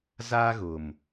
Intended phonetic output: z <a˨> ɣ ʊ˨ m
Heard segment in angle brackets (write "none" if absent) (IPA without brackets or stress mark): a˦